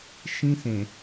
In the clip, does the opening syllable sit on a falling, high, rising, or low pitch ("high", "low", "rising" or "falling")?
high